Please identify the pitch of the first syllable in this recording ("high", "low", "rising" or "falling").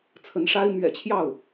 rising